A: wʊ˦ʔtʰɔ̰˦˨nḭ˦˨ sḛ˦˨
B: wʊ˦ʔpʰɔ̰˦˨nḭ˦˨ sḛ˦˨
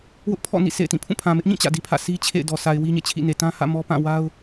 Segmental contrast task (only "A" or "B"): B